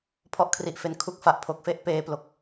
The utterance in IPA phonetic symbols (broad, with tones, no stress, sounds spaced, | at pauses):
pʰ ɔ˥˩ ʔ kʰ r i˨˩ ʔ f e˧ n kʰ u˦˥ k̚ f a˨˩ ʔ pʰ o˨˩ k̚ f e˦˥ ʔ p eː˧ p l o˨˩ k̚